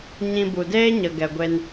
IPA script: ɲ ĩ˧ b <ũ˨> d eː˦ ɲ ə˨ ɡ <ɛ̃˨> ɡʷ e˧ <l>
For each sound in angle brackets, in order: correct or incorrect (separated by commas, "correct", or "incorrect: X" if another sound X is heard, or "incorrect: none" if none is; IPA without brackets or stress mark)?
incorrect: u˨, incorrect: ɛ˨, incorrect: n